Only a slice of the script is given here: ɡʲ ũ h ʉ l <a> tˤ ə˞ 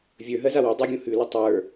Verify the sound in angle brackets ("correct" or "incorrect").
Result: incorrect